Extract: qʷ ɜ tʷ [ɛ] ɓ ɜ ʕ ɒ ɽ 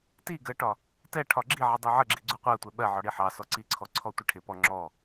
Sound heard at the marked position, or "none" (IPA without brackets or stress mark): ɛ